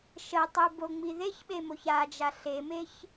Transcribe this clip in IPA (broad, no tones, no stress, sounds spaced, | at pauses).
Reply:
ʃ ə tˤ y b o ŋ͡m i ð e ç ɓ e m o ç a d͡ʒ a ɬ e m e ç